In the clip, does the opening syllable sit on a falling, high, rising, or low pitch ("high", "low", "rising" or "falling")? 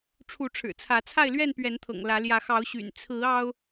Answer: rising